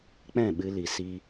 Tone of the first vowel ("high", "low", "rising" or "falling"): falling